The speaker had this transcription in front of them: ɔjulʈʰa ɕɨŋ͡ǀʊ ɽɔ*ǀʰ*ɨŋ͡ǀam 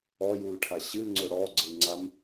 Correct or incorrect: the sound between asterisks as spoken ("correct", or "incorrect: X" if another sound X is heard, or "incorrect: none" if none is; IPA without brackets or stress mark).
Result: incorrect: ɡ͡ǀ